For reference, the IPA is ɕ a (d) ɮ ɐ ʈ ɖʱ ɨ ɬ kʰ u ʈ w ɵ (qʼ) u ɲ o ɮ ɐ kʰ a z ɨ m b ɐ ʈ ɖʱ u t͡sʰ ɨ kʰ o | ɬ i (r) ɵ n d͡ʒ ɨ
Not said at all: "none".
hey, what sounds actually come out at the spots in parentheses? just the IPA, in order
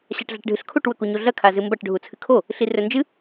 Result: ʈ, k, r

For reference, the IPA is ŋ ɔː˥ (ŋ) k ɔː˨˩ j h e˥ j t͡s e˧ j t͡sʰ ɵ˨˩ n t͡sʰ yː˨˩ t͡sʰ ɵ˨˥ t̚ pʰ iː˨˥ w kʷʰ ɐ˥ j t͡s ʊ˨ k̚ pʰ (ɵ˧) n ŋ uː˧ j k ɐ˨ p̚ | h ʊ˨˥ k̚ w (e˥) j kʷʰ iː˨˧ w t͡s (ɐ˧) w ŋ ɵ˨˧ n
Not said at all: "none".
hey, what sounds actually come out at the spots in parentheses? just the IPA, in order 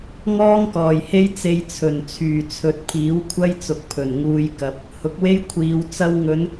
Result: ŋ, ɵ˨˩, e˥, ɐ˧

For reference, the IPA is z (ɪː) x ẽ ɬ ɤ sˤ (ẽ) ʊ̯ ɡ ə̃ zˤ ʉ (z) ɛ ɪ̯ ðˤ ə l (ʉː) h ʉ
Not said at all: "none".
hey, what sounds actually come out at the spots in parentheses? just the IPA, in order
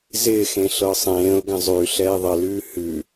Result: ɪː, ẽː, ɬ, ʉː

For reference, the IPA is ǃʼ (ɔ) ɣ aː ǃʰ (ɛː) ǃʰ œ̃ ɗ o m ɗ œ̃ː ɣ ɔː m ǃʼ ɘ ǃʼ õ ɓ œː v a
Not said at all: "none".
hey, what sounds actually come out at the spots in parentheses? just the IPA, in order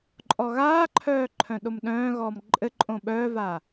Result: ɔ, œː

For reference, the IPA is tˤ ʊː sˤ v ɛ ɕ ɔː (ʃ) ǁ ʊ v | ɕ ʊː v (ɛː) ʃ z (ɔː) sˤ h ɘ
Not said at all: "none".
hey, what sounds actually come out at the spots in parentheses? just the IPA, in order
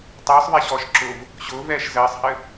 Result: ʃ, ɛː, əː

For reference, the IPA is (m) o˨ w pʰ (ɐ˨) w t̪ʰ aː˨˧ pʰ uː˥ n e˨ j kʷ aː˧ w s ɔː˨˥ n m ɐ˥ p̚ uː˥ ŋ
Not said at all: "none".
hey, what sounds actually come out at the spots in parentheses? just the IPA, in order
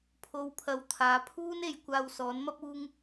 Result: pʰ, ɐ˨˧

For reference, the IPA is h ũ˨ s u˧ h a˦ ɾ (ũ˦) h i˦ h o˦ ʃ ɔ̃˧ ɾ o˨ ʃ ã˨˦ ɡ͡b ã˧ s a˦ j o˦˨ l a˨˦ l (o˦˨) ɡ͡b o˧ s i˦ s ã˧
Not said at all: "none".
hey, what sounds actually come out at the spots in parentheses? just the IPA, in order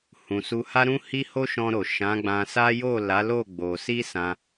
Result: ũ˦, o˦˨

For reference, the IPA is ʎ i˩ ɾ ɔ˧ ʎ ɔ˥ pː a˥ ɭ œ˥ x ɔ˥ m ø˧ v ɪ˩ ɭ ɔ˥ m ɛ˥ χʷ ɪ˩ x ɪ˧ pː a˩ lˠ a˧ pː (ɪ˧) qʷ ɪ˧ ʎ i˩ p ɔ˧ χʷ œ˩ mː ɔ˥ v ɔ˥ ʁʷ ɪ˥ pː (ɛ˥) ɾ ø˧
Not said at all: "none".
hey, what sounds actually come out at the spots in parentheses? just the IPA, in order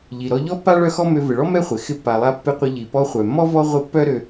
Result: ɪ˧, œ˥

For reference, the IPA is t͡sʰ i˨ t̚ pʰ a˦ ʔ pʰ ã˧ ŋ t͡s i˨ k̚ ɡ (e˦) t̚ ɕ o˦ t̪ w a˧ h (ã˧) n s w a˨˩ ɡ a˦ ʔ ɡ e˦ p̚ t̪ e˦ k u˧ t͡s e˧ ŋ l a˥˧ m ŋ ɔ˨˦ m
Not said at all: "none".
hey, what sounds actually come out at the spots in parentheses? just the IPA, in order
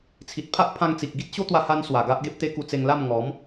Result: i˦, a˧

